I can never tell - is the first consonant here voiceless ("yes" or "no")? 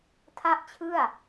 yes